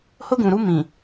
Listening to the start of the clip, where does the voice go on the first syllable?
high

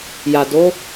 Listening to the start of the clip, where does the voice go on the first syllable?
low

